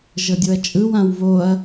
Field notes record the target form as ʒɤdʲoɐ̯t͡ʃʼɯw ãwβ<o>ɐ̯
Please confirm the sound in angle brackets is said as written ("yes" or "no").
yes